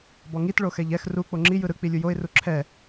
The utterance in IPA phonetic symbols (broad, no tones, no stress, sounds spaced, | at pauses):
b ɔ ŋ i t ɭ o x ɛ ʎ ɛ x r u k͡p o ŋ͡ǁ i j ɯ ɾ ɯ k͡p i lʲ u j o ɪ̯ r u ǁʰ ɛ